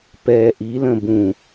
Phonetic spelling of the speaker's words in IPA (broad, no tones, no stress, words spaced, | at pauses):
pɛ ʔilə̃ bũ